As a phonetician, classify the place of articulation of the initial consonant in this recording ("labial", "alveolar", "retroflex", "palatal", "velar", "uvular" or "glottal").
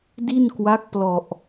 alveolar